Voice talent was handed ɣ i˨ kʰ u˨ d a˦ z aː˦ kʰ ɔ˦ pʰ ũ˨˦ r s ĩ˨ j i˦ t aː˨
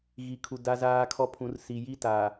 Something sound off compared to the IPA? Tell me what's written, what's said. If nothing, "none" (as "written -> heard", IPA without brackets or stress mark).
ĩ˨ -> i˨